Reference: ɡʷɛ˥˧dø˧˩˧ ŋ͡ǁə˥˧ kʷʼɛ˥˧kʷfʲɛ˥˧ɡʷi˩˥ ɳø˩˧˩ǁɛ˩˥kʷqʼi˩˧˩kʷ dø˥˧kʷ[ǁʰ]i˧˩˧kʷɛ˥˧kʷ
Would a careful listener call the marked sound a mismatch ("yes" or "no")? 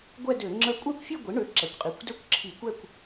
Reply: no